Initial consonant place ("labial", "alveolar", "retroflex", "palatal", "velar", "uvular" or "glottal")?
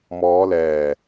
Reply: labial